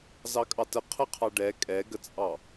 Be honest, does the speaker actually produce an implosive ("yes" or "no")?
no